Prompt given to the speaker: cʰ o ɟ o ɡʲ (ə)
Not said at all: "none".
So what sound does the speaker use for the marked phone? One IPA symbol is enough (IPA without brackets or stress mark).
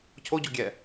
ɛ